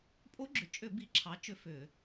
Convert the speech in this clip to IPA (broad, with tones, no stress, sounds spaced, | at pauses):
pʼ o˦˥ ɡ͡ǁ ʏ˩˧˩ t͡ʃʼ ʏ˧˩˧ b i˩˥ ǁʰ ɑ˩˥ t͡ʃ ʏ˩˧˩ f ʏ˧˩˧